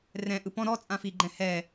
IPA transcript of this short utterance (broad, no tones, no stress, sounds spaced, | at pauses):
r ɛ̃ ʔ ɯ p ɔ̃ ɾ ɔ t͡sʼ ã f i ɡ͡ǃ ɛ̃ h ɛ